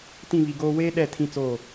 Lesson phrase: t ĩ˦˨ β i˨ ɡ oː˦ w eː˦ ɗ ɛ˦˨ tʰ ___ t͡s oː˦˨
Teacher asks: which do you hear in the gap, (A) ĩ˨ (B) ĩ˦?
B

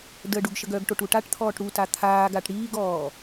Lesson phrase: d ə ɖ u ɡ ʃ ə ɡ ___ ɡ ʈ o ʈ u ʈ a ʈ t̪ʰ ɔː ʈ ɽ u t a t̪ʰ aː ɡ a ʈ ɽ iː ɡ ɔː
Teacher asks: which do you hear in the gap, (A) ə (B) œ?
B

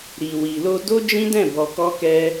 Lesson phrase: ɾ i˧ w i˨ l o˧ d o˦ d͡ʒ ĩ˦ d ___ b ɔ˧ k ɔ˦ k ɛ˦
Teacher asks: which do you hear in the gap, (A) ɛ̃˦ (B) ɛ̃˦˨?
B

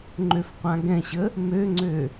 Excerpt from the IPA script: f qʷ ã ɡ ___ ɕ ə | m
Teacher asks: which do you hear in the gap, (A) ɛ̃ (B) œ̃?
A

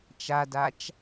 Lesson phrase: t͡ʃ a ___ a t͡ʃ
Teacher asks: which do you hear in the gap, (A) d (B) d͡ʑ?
A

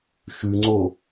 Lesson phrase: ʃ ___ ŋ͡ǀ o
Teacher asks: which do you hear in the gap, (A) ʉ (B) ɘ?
A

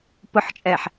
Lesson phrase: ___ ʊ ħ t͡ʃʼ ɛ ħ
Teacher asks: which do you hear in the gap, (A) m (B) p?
B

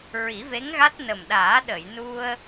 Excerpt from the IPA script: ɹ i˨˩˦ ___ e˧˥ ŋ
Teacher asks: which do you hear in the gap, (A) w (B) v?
B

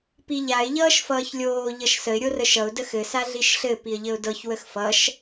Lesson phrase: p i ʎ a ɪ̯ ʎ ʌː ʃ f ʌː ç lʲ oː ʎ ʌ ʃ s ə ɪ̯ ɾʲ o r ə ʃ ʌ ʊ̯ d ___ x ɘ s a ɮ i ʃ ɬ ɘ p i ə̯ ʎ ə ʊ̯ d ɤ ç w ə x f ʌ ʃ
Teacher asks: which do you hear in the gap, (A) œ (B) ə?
B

